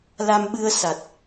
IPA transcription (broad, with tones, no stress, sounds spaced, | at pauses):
l a˧ m ɓ ɨ˧ ə̯ s a˨˩ t̚